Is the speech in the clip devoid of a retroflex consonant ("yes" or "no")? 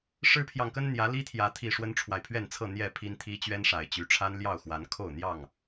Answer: no